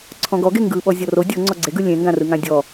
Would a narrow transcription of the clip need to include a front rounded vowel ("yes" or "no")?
no